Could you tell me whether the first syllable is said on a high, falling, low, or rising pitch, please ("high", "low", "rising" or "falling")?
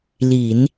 low